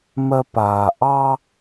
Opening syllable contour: high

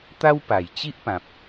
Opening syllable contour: high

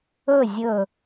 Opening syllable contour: falling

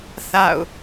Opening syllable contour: falling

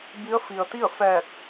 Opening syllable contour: rising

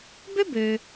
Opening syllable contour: high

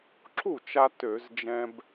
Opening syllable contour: falling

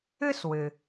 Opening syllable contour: high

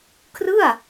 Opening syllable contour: falling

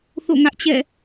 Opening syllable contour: falling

